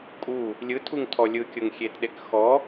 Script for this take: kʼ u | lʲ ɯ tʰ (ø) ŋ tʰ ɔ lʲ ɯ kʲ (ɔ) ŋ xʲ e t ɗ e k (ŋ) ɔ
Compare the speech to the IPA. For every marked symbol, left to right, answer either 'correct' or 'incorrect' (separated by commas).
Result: incorrect, incorrect, incorrect